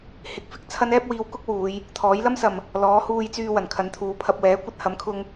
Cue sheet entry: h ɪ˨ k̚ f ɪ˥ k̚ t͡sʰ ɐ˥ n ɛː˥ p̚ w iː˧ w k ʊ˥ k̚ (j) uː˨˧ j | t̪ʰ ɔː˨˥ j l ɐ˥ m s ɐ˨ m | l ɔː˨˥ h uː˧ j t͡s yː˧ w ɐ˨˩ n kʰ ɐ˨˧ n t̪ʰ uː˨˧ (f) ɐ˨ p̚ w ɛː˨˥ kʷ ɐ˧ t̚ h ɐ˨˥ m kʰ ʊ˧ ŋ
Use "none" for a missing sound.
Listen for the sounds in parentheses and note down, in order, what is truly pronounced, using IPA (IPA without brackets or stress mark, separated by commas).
w, pʰ